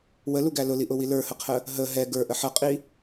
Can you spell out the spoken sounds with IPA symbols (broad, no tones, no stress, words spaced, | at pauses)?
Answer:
wəluɡæ lʊliʔʊwi lə˞həqʰə | ɦə ɦɛ ɡə˞ʔə ħʌqʼi